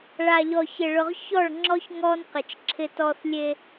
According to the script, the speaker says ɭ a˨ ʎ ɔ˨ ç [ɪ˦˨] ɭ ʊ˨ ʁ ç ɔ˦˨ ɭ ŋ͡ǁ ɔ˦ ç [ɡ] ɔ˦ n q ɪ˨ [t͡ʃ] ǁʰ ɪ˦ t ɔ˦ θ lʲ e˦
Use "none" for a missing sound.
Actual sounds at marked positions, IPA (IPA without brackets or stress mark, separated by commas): ɪ˨, ŋ, t͡ʃ